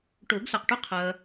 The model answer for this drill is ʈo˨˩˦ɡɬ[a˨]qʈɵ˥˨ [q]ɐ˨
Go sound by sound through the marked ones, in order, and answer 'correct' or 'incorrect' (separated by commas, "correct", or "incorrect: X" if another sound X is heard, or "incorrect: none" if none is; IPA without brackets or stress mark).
correct, incorrect: qʰ